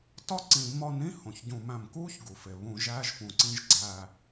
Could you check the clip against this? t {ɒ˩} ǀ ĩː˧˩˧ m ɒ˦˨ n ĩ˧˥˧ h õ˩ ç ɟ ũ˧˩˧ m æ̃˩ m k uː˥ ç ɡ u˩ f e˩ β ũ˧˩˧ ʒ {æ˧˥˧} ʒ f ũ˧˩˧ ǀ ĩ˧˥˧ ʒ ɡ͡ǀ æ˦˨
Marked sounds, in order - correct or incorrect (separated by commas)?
incorrect, correct